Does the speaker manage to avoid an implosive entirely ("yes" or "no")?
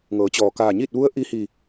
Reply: yes